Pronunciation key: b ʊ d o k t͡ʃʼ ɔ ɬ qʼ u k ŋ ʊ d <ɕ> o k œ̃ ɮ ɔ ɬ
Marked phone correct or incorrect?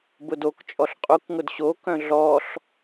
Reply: correct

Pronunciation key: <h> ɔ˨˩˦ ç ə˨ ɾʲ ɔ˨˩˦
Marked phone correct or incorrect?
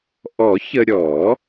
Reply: incorrect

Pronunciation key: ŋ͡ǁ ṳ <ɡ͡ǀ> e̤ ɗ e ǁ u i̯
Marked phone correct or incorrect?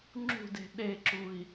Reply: incorrect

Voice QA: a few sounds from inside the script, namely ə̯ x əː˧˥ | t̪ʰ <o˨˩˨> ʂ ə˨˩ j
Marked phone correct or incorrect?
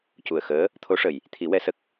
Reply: incorrect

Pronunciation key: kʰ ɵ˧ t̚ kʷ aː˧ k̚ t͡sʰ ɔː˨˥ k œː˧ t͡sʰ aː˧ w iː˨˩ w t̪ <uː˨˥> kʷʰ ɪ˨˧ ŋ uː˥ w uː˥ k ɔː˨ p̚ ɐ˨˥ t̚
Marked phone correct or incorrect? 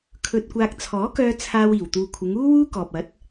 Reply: incorrect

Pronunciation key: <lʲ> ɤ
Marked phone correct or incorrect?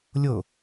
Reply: correct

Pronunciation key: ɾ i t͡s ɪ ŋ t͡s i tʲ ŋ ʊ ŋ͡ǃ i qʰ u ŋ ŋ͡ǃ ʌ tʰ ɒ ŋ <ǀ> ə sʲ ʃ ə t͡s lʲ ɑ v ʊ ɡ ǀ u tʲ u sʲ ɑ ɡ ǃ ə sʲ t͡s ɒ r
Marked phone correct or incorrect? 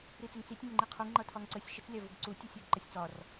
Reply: correct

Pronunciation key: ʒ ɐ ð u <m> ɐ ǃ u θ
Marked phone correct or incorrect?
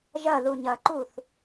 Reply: incorrect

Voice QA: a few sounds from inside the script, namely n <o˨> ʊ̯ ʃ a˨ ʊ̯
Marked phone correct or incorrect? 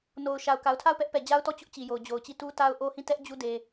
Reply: correct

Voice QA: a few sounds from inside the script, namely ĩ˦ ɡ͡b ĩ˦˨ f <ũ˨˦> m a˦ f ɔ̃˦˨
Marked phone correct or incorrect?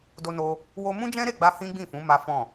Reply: correct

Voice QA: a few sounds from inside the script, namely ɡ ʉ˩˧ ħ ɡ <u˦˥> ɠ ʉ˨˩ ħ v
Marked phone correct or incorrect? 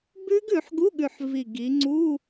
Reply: incorrect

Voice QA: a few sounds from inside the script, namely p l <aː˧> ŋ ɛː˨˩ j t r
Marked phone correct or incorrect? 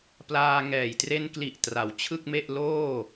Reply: correct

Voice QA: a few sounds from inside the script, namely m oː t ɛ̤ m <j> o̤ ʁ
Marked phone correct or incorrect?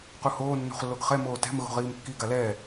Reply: incorrect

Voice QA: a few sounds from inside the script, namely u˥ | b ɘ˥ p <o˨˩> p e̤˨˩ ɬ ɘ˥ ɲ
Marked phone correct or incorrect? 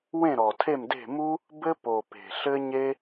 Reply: correct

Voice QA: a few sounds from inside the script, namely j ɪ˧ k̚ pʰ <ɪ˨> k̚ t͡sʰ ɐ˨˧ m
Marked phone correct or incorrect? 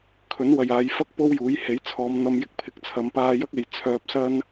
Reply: correct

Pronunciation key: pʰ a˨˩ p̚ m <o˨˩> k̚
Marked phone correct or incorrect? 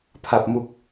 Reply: incorrect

